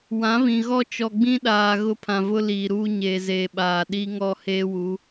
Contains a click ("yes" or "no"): no